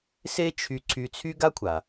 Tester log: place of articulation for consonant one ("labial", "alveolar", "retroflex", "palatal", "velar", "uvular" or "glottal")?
alveolar